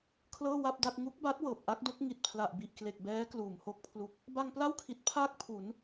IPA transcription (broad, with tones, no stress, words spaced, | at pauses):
kʰlɤː˥˩wa˥˩p̚da˥˩t̚ ŋu˦˥k̚ba˦˥t̚ wɤː˨˩p̚ʔa˦˥k̚do˦˥k̚ ŋi˨˩t̚pʰla˨˩ʔbi˨˩ʔ kle˨˩k̚bɛː˦˥ kluː˩˦mho˦˥k̚pʰlu˦˥k̚ | ba˧ŋpla˥˩wkʰi˨˩t̚ pʰaː˥˩k̚ pʰu˩˦n